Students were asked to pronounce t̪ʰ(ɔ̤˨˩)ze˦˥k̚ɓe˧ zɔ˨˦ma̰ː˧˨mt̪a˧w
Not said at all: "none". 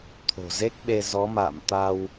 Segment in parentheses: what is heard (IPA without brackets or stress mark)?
o̤˨˩